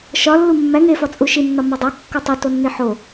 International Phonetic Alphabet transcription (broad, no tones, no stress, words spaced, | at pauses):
ʃɒ lːumːæ ŋe fɒt͡sʼuʃinːɒ mɒdˤæ kːotˤutonːi ħo